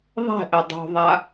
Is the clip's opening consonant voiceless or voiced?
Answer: voiced